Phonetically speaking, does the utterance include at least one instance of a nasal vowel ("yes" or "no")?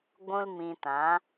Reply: yes